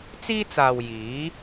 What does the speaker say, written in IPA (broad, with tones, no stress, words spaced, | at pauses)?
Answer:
t͡siː˥t͡saː˨w jiː˨˥